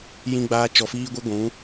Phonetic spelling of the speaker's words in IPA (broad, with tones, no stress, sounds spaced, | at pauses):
j ĩ˦ ɡ͡b aː˦ t͡ʃ ɔ˧ f iː˦ ɡʷ ɨ˦ ɡʷ ũ˨˦